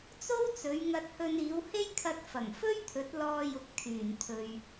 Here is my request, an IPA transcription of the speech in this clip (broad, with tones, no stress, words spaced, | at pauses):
t͡so˥wt͡sɵ˨˧ɥŋɐ˧t̚hɵ˧n iː˨˧whe˥jkʰɐ˧t̚ fɐ˨˩ŋfɵ˥ɥ t̪ʰɵ˨˥t̚lɔː˧jʊ˨k̚ t̪ʰyː˨˩nt̪ʰɵ˨ɥ